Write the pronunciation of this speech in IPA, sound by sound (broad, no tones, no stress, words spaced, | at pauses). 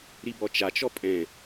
ɾibɔt͡ʃat͡ʃɔ pʼɛ̃